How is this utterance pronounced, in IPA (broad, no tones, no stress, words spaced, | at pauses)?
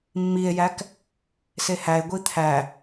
mːie̯jæk | sehæe̯ ɡʷit̪ʰæ